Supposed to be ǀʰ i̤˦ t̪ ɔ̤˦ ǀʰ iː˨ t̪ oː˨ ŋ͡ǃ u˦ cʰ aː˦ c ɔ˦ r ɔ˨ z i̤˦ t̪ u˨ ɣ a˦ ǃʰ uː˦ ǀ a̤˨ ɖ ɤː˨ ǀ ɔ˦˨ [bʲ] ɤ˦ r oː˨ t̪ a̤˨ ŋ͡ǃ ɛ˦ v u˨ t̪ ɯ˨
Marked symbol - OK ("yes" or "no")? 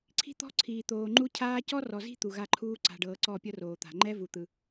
no